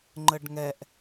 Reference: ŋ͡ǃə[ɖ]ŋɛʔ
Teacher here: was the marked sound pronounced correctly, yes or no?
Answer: yes